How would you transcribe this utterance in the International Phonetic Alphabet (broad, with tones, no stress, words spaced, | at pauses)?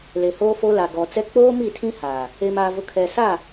le˨hoː˦fo˦la˨ ɡɔ˨t͡sɛ˦ k͡poː˦mi˦˨tʰĩ˦ haː˨ | e˨maː˨vʊ˨ kʰɛ˨ saː˦˨